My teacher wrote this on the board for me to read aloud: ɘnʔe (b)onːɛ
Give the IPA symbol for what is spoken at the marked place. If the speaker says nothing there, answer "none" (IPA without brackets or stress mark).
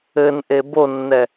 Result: b